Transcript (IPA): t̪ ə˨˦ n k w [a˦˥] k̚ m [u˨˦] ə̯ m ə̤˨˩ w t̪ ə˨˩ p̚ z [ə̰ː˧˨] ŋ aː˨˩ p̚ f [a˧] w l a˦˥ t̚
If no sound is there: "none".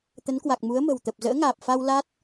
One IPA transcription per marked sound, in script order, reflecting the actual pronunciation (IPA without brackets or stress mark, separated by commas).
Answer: a˨˩, u˨˦, ə̰ː˧˥, a˧